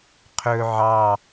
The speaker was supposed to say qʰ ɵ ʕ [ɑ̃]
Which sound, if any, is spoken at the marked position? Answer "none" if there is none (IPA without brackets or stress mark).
ɑ